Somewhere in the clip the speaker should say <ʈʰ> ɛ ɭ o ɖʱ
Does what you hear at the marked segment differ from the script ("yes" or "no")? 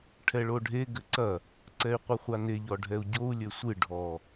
no